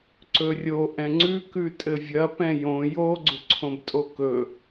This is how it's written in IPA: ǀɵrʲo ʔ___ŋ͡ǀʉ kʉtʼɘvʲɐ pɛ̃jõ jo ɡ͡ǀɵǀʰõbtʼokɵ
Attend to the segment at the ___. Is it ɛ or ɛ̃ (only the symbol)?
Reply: ɛ̃